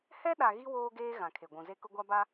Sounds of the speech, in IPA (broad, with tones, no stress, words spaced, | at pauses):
hɛ˦ɗa˨ ɣi˦ woː˦ɡeː˦ ɣã˨kʰe˨ɡʷũ˨ ze˦kʊ˦ɡʷa˦ ba˦